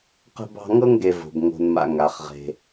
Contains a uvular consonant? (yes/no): yes